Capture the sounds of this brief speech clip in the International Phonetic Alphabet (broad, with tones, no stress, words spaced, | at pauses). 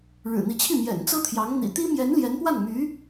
ɻɻ̩˨˩n̪i˧˥t͡ɕʰi˥˩ mjɛ̰˨˩nt͡sɤ˥t̪ʰjɑ˧˥ŋ n̪ḭ˨˩t̪i˥mjɛ˧˥nljɛ˧˥n pwa˥˩nmy˧˥